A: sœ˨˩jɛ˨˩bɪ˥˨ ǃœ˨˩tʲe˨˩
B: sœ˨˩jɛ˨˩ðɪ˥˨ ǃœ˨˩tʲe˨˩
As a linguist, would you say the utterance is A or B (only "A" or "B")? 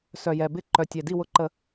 A